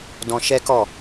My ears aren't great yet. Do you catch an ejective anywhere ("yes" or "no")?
no